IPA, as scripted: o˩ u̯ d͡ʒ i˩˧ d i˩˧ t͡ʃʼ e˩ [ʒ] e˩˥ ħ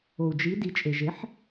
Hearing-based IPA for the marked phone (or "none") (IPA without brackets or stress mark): ʒ